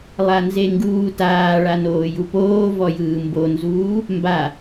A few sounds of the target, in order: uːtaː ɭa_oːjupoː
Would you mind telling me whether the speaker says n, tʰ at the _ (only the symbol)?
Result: n